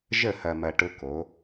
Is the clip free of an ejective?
yes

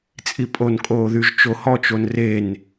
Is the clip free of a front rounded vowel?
no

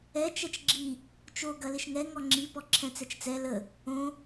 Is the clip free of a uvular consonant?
yes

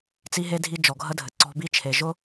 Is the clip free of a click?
no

